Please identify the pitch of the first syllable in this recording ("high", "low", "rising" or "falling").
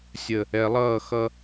low